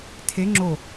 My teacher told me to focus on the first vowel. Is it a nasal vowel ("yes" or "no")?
no